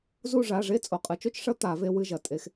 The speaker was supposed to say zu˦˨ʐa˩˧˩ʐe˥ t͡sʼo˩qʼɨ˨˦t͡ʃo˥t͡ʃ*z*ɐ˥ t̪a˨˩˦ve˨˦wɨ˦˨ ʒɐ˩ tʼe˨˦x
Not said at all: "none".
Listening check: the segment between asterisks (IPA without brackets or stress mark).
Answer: ʂ